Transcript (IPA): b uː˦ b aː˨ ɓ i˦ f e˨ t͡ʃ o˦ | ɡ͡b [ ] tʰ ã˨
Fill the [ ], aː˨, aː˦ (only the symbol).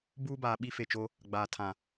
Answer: aː˨